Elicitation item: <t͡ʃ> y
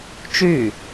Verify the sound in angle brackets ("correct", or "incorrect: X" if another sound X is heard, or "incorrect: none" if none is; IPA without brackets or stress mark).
correct